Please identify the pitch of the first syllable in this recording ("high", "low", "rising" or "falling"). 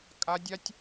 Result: high